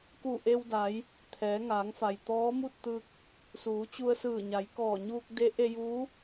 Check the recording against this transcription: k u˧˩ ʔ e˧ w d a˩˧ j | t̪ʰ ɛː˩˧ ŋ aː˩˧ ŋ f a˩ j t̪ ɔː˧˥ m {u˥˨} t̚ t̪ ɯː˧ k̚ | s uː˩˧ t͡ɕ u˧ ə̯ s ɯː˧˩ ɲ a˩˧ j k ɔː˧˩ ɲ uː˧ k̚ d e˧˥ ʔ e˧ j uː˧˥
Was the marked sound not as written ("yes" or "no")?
no